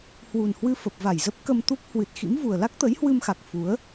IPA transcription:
h w u˨˩ n h w ɨ˧ f ə˨˩ p̚ v a˧˩ j z ə˦˥ p̚ k ə˧ m t̪ u˦˥ k̚ h w ɨ˨˩ t̚ x ḭ˧˥ m v u˨˩ ə̯ l a˦˥ k̚ t̪ ə˨˦ j h w ɨ˧ m x a˨˩ k̚ f u˨˦ ə̯

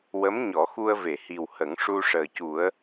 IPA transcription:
w ə˧˥ m ɲ ɔ˨˩˦ x u˧ ə̯ v e˨˩˨ h i˨˩ w h ə˨˩˦ ŋ ʂ u˧ ʂ əː˨˩ c u˨˩˦ ə̯

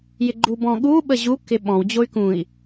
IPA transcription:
j ɪ ɡ͡ǃ u b ɔ̃ ɠ u ɓ ə ʑ u k ɪ ɓ ɔ̃ w d͡ʑ o y̯ k ũ i̯

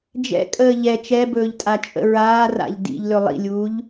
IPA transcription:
d͡ʒ ɛ̰ kʼ əː ʎ ɛ t͡ʃ ɛ b ɵː ʎ tʼ a t͡ʃʼ ə̰ ɹ aː r a̰ ʎ d ḭ ʎ l ɵ lˠ ḭ lʲ uː ʎ

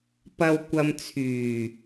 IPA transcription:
p ɐ˨ w kʷ ɐ˨ m t͡sʰ yː˨˩

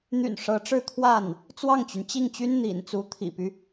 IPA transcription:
n̪ y̰˨˩ n ʂ ɤ˧˥ ʈ͡ʂ ɻ̩˥˧ t̪ʰ w a˥˩ n | t͡s w ɑ˥˩ ŋ t͡ɕ y˩ n t͡ɕ i˥˩ ŋ t͡ɕ y˥ n n̪ ḭ˨˩ n t͡s u˧˥ t̪ʰ ḭ˨˩ p y˦

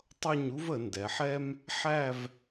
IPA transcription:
tˤ ʌ˥˧ ɲ u˥ v ə˩˧ n d ɛ˩˧ ħ ɛ˥ m | ħ æ˥˧ v

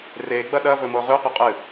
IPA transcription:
r e ɡ͡b ɐ ɗ ɐ v ɵ m o ʁ ʉ qʷ ɨ qʼ ɨ

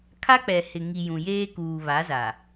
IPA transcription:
kʰ a˦ k͡p ɛ˨ h ɪ˨ ŋ i˨ j ũ˨ j eː˦ k uː˨ β a˨˦ z a˨

